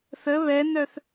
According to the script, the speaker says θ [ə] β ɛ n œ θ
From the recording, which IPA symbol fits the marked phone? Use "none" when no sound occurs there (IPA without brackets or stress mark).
ə